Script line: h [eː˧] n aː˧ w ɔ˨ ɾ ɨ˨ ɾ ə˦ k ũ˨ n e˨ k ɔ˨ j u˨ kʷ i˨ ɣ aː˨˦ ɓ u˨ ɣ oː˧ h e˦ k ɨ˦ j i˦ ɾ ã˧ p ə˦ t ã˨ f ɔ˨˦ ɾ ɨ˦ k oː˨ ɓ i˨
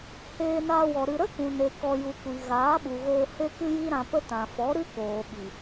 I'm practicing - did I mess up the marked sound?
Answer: no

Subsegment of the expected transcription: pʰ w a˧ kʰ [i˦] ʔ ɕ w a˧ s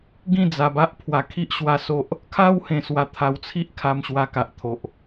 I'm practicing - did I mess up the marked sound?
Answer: no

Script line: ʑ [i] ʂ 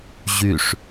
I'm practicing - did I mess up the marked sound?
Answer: yes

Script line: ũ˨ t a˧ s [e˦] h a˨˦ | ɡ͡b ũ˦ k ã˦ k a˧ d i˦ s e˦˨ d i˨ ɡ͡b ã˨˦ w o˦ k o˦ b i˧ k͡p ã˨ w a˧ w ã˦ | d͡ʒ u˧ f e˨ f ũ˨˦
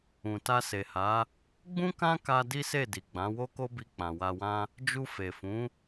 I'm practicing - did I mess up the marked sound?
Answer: yes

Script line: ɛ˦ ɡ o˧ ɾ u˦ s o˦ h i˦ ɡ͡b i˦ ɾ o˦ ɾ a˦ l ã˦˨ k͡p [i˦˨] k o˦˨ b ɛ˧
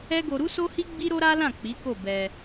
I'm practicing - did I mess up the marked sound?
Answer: yes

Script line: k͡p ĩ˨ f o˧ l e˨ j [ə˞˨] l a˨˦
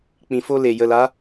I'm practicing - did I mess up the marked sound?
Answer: yes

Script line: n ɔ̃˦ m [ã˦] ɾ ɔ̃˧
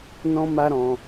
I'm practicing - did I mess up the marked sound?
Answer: yes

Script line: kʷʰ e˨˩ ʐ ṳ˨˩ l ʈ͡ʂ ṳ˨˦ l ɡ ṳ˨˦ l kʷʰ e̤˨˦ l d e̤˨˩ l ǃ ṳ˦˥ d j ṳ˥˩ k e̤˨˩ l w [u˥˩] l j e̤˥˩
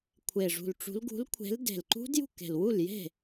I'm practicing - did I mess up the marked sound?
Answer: no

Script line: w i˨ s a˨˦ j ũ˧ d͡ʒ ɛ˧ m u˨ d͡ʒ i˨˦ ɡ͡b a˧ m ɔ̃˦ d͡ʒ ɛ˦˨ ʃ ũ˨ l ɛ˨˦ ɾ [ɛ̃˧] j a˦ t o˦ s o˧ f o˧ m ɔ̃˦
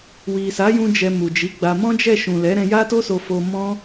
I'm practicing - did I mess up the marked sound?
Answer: no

